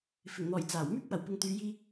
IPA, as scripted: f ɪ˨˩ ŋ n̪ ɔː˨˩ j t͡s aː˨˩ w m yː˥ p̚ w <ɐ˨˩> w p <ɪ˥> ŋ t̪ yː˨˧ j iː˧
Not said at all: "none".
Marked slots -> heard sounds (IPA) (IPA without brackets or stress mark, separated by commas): ɐ˨˩, ɪ˨